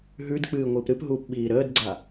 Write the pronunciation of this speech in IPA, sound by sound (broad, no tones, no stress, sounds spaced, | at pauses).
ɦ ʉ d k͡p ɨː ŋʷ ɨː p ɾ ɨ p ɦ uː p ɓ iː ɾ əː d ɡ͡ǀ a